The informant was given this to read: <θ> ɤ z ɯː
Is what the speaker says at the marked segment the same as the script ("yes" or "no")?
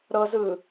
no